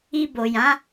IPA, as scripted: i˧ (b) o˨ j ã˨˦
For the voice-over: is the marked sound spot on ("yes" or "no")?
yes